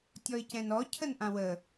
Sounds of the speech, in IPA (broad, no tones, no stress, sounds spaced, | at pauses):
tʲ ɔ ɪ̯ c ɛ̃ n ɔ cʰ ə n ʔ ã w ə